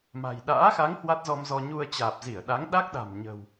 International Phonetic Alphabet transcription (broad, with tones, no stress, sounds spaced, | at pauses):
m a̤˨˩ j ɗ a̰ː˧˥ x a˨˦ ŋ h w a˦˥ t̚ z ɔ˧ m z ɔ˧ ɲ u˧ ə̯ t͡ɕ aː˨˩ p̚ z i˧˩ ə̯ ɗ a˨˦ ŋ ɗ a˦˥ k̚ ɗ a̤˨˩ m ɲ ə̤˨˩ w